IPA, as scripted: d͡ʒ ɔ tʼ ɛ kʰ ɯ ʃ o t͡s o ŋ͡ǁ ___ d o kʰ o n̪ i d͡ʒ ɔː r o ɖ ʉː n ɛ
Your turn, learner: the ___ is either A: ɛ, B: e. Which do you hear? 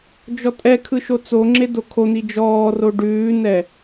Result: B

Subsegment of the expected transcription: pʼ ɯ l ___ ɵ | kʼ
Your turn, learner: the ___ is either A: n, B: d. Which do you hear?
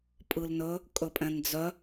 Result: A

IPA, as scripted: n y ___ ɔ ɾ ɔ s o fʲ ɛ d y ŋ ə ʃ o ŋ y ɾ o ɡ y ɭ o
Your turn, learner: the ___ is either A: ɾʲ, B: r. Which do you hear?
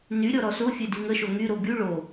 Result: A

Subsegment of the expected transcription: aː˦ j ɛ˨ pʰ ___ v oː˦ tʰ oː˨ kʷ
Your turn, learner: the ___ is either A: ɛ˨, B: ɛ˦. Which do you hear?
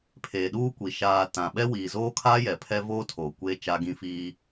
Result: B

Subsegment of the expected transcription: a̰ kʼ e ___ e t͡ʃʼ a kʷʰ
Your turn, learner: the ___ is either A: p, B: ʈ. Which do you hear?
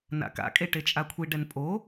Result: B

